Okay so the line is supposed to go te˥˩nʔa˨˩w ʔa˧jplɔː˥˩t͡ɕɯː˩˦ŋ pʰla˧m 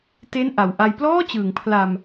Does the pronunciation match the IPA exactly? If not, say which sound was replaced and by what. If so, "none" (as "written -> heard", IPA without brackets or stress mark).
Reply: none